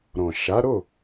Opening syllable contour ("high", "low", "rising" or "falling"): low